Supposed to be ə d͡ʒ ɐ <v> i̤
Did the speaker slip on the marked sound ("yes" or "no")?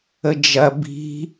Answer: yes